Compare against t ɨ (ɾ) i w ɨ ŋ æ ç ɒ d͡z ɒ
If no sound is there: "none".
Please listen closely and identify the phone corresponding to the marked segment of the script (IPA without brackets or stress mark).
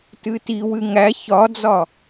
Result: t